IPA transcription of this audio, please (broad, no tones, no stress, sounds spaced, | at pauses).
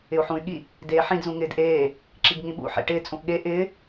ɪ u̯ ħ ũ y̯ ɠ i | d eː ħ ĩ d z ũ ŋ ɪː d ʔ eː | ǁ i ɡ ŋ ĩ ɓ ṵ ħ ḛ ʈ ɪː t͡sʼ ũ ʔ ɠ e ʔ ɪː